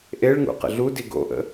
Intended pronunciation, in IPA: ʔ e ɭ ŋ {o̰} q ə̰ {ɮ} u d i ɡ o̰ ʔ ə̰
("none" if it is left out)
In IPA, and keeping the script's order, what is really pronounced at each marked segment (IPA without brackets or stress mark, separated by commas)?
ṵ, ɮ